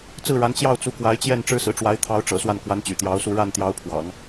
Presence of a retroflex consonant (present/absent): present